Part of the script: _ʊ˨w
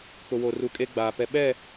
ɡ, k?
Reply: k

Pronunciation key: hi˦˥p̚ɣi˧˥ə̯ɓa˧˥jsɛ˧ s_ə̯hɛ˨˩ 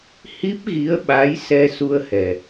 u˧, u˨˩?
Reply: u˧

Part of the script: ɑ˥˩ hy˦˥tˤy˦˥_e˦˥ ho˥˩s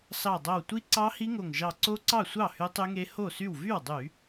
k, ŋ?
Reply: ŋ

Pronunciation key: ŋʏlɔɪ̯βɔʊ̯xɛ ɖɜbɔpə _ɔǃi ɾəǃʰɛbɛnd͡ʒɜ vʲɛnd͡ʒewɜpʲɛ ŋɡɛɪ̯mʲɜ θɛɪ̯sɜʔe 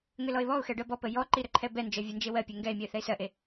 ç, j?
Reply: j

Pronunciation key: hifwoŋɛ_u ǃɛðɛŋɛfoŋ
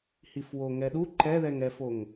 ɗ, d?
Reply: ɗ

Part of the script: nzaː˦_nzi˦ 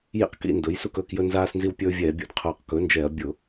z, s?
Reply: s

